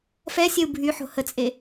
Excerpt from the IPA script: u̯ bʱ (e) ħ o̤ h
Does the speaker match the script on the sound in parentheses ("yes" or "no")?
no